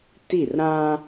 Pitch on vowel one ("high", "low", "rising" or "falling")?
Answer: falling